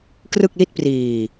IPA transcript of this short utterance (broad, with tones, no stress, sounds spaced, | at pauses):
k r ɯ˥˩ k̚ l i˥˩ t̚ p r iː˧